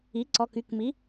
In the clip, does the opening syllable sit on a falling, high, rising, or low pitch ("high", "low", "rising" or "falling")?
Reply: rising